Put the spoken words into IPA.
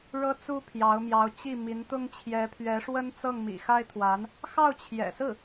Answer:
ɻ ɤ˥ t͡s u˥ pʰ j ɑ˧˥ ʊ̯ m j ɑ˧˥ ʊ̯ t͡ɕ i˥˩ m i˧˥ n t̪ ʊ˥ ŋ t͡ɕʰ j ɛ˧˥ pʰ ɥ ɛ˧˥ ʂ w ə˥ n t͡s ɤ˥˩ ŋ m ḭ˨˩ x a˥ ɪ̯ t̪ʰ w a˧˥ n | x ɑ˥˩ ʊ̯ t͡ɕʰ j ɛ̰˨˩ s ɹ̩˥˩

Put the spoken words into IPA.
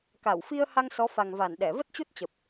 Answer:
k a˧˩ w f i˧ ə̯ h a˧ ŋ s ɔ˨˦ f a˨˩ ŋ v a˧˩ n ɗ ɛ˧˩ v ə˦˥ t̚ t͡ɕ u˦˥ t̚ t͡ɕ ə˨˩ p̚

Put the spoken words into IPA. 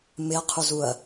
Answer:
m ɪ ɐ̯ qʰ u z u ɐ̯

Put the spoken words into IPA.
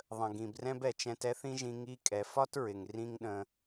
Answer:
ðˤ ə̃˩ ɡ ĩ˩ b r ɛ̃˥ b ɛ˩ t͡ʃ ɛ̃˧ t ɛ˥ θ ĩ˥ ʒ ĩ˧ ŋ i˧ kʼ ɛ˩ f ɒ˥ t ɹ ɪ˩ ŋ r ĩ˥ ŋ ɗ ə̃˧

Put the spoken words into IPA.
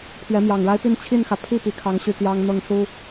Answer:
pʰ ɥ ɛ˨˦ m j ɑ˨˩ ŋ ɻ a˦ ɪ̯ p i˥˨ n t͡ɕʰ i˥˨ n x ä˩ pʰ i˥˨ p i˨˩ kʰ ɑ˨˦ ŋ ɕ y˨˩ t̪ j ɑ˦ ŋ n̪ ɤ˥˨ ŋ s u˦

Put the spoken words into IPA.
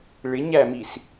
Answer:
ɭ ɪ ɲ æ m i s

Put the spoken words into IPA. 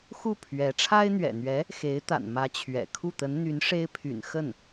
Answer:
x u˥˩ pʰ ɥ ɛ˧˥ ʈ͡ʂʰ a˥ ɪ̯ n̪ ɥ ɛ̰˨˩ n̪ ɥ ɛ˧˥ | x e˧˥ ɪ̯ t̪ a̰˨˩ n m ä˧˥ t͡ɕʰ ɥ ɛ̰˨˩ kʰ u˥˩ t̪ ə˧˥ n n̪ y˧˥ n ʂ e˥ ɪ̯ pʰ y̰˨˩ n x ə˥˩ n

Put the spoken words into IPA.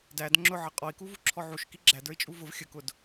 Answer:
d æ d ŋ͡ǁ ʊ ʕ ʌ qʼ ɔ i̯ k u v u ǁʰ ɔ ʕ u ʃ k i ɡ͡ǁ æ d ə˞ i̯ t͡ʃʼ u v ʊ v xʲ ə k ʊ d

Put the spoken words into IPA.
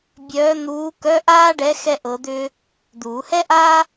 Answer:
bʲ œː˧˥ n̪ uː˧˥ k œ˧˥˧ ʔ aː˥ ɖ ɛ˧˥ x ɛ˥ ʔ ɤ˧˥ d̪ ʏː˥ | d̪ uː˨˩˦ h ɛ˥ ʔ aː˥

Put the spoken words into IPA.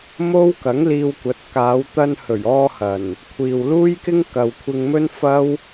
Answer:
m o˥ w k ɐ˨˥ ŋ l iː˧ w kʷ ɐ˨˥ t̚ k aː˨˧ w t̪ ɐ˧ n h ɵ˨˩ ɥ ɔː˧ h ɐ˨˩ n | kʷʰ iː˨ w l uː˥ j k ɪ˥ ŋ k ɐ˨ w kʷʰ ɪ˧ ŋ m ɵ˥ n f ɐ˥ w

